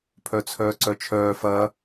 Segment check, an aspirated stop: present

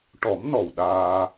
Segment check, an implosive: present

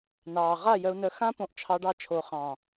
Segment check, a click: absent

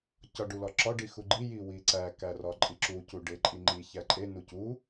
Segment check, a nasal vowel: absent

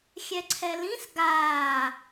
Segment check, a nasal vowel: present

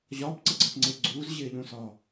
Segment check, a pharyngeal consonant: absent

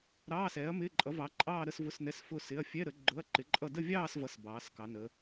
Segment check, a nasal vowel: absent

